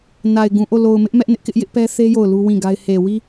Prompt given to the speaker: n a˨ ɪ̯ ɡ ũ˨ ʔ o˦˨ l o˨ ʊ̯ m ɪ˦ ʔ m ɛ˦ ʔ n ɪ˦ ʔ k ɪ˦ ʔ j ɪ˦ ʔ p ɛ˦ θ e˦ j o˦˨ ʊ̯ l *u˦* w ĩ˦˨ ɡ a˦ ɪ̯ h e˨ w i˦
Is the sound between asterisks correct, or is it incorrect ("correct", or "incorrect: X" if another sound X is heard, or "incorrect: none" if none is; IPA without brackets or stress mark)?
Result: correct